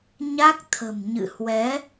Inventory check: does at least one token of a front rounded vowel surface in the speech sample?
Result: no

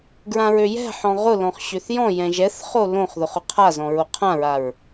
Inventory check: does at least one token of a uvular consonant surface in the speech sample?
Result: yes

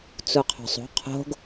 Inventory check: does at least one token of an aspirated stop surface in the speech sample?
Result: yes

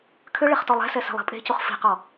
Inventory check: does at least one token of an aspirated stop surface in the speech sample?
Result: yes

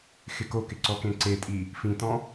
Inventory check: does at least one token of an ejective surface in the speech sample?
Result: yes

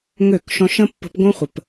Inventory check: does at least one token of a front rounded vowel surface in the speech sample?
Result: yes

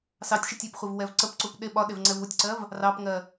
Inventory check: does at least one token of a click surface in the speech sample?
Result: yes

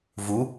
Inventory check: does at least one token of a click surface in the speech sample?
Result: no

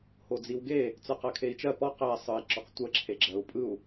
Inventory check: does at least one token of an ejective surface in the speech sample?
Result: yes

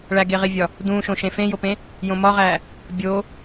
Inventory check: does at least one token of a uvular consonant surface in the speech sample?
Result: yes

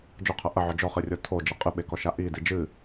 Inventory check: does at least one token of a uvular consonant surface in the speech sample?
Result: yes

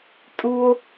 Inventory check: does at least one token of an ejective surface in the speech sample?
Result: yes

